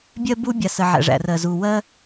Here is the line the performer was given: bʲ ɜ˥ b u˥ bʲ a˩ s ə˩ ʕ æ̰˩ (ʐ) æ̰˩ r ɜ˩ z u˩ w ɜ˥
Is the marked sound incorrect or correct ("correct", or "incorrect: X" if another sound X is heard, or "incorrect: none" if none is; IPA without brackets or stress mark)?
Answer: correct